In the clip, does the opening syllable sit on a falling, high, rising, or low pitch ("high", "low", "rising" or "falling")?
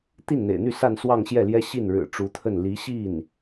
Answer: falling